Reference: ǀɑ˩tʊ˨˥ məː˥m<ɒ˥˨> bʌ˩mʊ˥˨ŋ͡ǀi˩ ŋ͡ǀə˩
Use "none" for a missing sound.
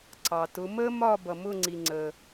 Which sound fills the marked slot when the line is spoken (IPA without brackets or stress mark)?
ɒ˥˨